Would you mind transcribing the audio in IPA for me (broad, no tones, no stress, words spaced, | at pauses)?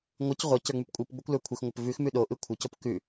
ŋʷɯc ʁʷə cə˞ŋ͡mʉpkʷʼɯpɡ͡bokʷ lə˞kʷʰɪxŋʷəp vʉx mʉɗoʔɯ kʷʰɪcop kʉ